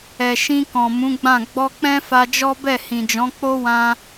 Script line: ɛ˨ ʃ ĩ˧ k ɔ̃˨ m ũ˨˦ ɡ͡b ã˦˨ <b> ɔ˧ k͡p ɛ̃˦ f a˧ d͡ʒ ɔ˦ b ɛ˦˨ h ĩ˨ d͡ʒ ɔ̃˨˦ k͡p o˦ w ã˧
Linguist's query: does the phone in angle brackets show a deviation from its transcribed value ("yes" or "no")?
yes